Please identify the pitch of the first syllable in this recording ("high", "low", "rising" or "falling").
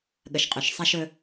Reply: low